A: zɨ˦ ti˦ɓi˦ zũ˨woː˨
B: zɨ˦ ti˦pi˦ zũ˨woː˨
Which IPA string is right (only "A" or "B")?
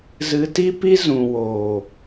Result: B